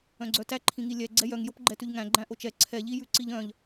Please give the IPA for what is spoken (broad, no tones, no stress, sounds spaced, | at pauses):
œ̃ ɡ͡ǀ œ t æ ǃʰ ĩ ŋ i lʲ ɛ ɡ͡ǀ ɛ j œ ŋ j o p ɡ͡ǃ ɛ t ʉ ʎ ŋ æ̃ ɡ͡ǃ æ̃ ʔ o t͡ʃ ɛ ǀʰ ɛ ʎ i j ʉ ǀ i ʎ œ̃ ʎ